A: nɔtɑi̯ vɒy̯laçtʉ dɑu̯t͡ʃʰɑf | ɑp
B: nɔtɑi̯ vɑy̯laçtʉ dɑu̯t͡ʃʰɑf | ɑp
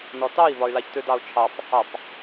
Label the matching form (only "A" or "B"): A